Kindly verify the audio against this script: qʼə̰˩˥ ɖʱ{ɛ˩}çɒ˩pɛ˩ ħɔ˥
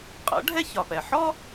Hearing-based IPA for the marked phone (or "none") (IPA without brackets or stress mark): ɛ˥